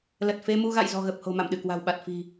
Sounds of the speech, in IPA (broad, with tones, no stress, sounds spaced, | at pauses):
l ə˨˩ t̚ f e˧ m u˧ ɣ a̰˧˨ j z ɔ̤˨˩ ɣ ə˨˩ p̚ h o̤˨˩ m a̰˧˨ m ɗ ɨ˧˩ k w a̤˨˩ w ɓ a˨˩ t̚ f i̤˨˩